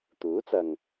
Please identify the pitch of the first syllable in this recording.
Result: rising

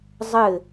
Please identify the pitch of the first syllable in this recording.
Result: falling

